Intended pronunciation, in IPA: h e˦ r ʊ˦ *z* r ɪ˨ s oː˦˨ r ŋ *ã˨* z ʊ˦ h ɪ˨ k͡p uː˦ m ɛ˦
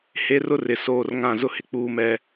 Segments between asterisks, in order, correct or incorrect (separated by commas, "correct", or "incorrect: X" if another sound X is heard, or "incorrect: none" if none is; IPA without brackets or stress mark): incorrect: none, incorrect: ã˦˨